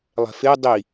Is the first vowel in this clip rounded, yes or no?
no